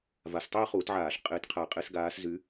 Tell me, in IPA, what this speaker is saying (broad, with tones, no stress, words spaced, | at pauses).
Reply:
va˨˦stˤeː˥χuː˨˩˦tʕaː˨˩˦ɬ qʼeː˨˦tqʰa˨˩˦qʼe˨˩˦sɡaː˨˦s zy˨˦